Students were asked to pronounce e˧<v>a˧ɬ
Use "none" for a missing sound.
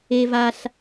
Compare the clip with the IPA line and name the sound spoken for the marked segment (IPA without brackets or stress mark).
v